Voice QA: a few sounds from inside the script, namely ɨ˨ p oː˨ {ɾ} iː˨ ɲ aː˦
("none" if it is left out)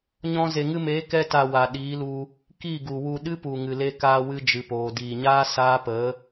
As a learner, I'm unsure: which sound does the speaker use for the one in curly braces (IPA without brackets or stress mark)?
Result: d